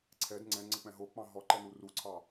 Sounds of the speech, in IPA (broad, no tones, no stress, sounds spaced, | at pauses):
ǀʰ ɛ d ŋ͡ǀ ɛ̃ ŋ͡ǀ ə k͡p ɛ̃ ɦ o k͡p ɑ̃ ɦ ɔ ǃ ɛ n u r u ǀʰ ɑ